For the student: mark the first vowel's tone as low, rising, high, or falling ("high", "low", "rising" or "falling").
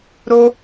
high